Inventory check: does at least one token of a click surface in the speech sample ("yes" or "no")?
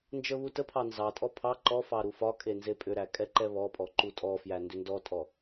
yes